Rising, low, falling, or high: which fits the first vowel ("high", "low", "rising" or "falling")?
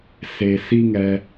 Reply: low